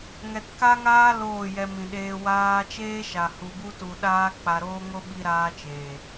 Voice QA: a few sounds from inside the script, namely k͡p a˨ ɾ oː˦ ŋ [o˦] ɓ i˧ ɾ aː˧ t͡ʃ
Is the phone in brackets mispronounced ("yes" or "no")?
no